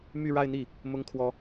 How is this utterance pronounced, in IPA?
m y˥˧ ɻ a˥˧ ɪ̯ n̪ i˥˩ | m ʊ˥ ŋ kʰ w ɔ˥

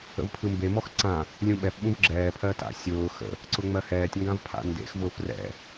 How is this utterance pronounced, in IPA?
ə̰ v pʰ ɯ m b e m ɔ x ǀ ã | lʲ ũ ɓ ɛ f ɓ ũ v ɡ͡ǁ ɛː pʰ ɜ t a̰ sʲ ʊː x ə̰ | ǀ ʊ ŋ͡m ɜ h ɛː tʲ ŋ ɡ ã v pʰ a̰ n d ḛ x v ʊː f r ɛ̰

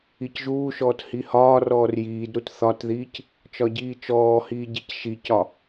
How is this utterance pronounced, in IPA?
i c ʒ uː ʃ ɔː t h i h ɒː r ɔː r j iː d ɾ u t θ ɒ t ð iː c | t͡ʃ ɒ ɟ iː t͡ʃ ɔː h iː ɟ i c ʃ i c ɒ

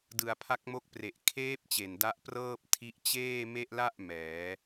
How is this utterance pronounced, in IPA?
d ɯ˧ a̯ pʰ a˦˥ k̚ m o˦˥ k̚ p r e˨˩ ʔ kʰ eː˦˥ p̚ t͡ɕ e˨˩ n d a˦˥ ʔ p r ɤː˥˩ p̚ tʰ i˦˥ ʔ t͡ɕ eː˥˩ m e˥˩ ʔ l a˥˩ ʔ m ɛː˩˦

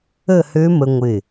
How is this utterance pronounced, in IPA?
ə˥˧ h ø˦˥ m ə˧ ŋʷ ɪ˧˩

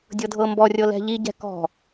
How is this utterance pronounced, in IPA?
dʲ ɤ dʱ ɤ m b ɔ rʲ ɤ l ɛ̤ ʎ i ɟ ɛ̤ k ɔ̤

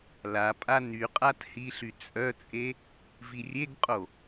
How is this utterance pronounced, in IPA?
l a pʼ a n y qʼ a t h i ɬ y t͡sʼ œ t͡sʼ e | v i rʲ e ɡ qʼ o

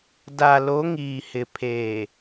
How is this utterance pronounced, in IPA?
d a˨ l o˨˦ ŋ iː˨ h ɪ˨ pʰ eː˨

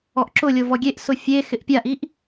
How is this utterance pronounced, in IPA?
ɔ ʔ ǁ ʊ lʲ o v ɔ ɡʲ e ʔ s ʊ fʲ e x ɪ ʔ pʲ a ʔ i ʔ

